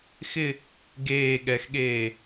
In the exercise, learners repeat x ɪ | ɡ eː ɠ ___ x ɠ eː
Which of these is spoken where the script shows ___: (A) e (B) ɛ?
B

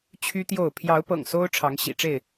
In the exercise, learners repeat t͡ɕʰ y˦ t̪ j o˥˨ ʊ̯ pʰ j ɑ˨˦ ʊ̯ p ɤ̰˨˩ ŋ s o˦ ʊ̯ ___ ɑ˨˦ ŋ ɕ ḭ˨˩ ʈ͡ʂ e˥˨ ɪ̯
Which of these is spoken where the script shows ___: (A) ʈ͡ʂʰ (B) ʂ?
A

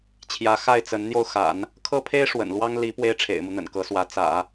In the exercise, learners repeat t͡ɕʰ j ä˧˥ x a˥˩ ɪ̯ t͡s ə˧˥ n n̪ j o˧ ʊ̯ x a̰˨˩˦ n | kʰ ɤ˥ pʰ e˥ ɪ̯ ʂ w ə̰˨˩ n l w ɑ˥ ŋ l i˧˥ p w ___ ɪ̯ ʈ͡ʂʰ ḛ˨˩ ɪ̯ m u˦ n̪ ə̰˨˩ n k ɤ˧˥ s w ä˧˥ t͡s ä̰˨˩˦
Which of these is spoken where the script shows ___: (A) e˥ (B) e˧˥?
A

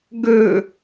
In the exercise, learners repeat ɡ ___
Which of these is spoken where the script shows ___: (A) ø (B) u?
A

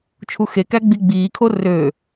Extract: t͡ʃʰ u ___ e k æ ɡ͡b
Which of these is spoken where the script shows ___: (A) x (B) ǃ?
A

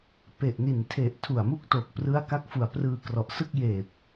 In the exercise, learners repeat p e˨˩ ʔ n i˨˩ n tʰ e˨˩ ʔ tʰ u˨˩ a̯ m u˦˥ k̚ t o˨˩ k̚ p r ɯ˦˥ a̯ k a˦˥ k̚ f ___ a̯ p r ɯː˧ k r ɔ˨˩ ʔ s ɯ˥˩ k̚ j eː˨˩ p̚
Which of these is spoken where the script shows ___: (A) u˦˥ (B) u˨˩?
B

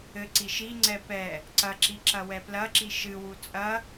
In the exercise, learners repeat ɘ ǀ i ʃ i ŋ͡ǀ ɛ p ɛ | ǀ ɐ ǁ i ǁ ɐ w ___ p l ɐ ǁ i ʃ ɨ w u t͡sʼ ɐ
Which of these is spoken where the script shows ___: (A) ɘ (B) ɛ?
B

